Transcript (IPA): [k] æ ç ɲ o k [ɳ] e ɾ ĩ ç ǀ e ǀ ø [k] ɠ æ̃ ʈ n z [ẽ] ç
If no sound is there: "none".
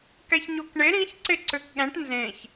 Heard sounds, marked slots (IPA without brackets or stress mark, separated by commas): k, ɳ, k, ẽ